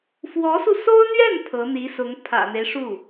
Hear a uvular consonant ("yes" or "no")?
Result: no